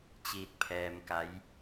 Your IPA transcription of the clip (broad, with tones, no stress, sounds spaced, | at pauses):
t͡ɕ iː˧ t̚ pʰ ɛː˧ m k a˧˥ j